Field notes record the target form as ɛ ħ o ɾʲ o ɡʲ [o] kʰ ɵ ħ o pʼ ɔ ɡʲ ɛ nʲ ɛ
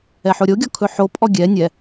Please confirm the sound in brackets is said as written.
no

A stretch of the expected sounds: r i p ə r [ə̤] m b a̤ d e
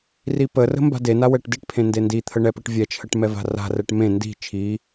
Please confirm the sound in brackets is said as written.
yes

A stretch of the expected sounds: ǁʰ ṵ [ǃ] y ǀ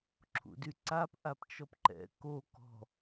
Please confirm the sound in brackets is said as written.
no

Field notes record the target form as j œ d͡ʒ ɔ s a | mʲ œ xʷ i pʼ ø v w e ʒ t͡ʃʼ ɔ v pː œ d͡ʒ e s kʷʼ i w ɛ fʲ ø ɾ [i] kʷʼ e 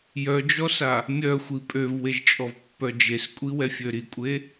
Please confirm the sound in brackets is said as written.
yes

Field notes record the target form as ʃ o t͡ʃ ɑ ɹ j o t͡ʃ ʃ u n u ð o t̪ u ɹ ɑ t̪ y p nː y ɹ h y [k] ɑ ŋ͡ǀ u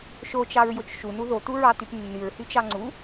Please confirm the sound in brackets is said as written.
no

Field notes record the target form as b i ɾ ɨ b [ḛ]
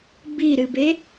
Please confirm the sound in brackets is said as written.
no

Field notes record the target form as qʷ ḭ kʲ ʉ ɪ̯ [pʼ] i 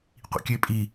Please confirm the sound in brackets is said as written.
yes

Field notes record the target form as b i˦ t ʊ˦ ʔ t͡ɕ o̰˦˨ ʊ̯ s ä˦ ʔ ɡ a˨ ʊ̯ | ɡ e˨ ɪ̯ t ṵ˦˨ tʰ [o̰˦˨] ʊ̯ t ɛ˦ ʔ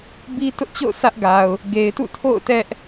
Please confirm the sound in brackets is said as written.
yes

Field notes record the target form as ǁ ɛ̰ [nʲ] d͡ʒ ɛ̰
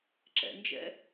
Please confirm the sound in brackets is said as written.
no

